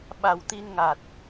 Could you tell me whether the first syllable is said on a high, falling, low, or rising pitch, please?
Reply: low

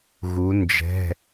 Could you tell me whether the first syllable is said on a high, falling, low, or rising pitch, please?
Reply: rising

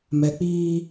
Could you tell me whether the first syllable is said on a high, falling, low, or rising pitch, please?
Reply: low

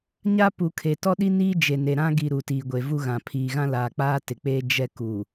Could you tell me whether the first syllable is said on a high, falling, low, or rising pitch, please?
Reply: high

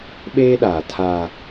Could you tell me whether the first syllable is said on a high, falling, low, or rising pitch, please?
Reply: high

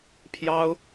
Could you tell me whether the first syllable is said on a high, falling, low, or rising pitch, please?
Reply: high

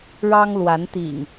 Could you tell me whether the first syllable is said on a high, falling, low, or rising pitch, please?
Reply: high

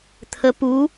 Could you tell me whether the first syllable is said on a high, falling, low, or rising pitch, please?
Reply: rising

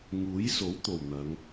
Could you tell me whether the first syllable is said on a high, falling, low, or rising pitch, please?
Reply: rising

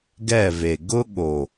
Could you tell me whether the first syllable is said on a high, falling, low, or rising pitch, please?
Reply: falling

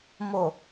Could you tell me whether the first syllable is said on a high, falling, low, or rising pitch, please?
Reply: low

